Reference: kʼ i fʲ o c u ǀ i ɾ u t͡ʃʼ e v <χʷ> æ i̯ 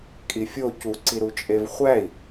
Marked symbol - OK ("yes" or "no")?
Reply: yes